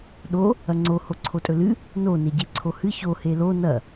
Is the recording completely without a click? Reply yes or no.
no